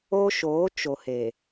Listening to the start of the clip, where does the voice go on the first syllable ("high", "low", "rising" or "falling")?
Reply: high